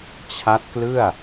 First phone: t͡ɕʰ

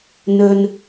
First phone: n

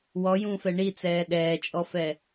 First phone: w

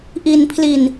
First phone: ʔ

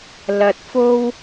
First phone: l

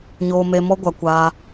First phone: ɲ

